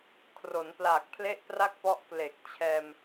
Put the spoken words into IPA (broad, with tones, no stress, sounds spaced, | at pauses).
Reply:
kʰ r o˩˦ n p l aː˨˩ k̚ pʰ l e˥˩ ʔ p r a˥˩ k̚ p ɔ˦˥ ʔ k l e˨˩ k̚ t͡ɕʰ ɛː˧ m